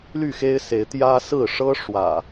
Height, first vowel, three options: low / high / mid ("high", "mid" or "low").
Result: high